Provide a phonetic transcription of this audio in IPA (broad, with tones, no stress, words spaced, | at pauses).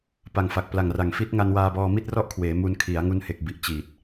pa˨˩ŋfa˨˩k̚ pla˨˩ŋra˨˩ŋ fi˦˥t̚ ŋa˧nwaː˧bɔː˧mi˥˩t̚ rɔ˥˩ʔkʰweː˩˦ mu˧nkʰi˩˦a̯ ŋu˧nhe˨˩k̚bi˨˩ʔ t͡ɕiː˨˩t̚